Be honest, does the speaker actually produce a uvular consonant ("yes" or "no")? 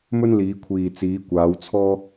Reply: no